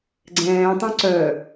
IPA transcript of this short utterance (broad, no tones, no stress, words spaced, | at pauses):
ɡ͡ǀɛ̃ːtˤœ̃ ǀœ